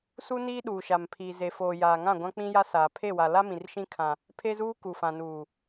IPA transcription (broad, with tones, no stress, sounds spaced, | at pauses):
s u˦ n iː˦ ɗ uː˨ ʃ a˨ m pʰ i˨ z e˨ f oː˨ j aː˨ ŋ ã˦˨ ɡʷ ã˦ k͡p ĩ˦ j a˦ s aː˨ pʰ e˦˨ w a˨ l a˦ m ĩ˨ r ʃ ĩ˦ kʰ ã˨ | pʰ e˦ z uː˦ k u˨ f ã˨ n uː˨